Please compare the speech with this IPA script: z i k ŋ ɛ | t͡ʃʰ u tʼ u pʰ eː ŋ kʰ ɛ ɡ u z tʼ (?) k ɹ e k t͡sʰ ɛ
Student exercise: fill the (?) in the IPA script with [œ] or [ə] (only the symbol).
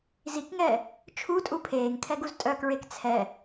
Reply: œ